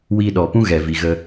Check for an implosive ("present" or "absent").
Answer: present